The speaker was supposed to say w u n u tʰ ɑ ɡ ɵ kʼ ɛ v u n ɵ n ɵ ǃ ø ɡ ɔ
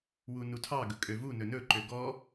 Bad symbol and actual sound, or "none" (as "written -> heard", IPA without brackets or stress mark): ɛ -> ø